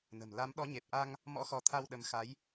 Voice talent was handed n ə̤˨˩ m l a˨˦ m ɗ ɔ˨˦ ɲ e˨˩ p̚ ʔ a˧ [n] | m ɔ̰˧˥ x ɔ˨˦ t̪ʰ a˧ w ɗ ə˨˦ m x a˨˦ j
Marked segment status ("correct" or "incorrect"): incorrect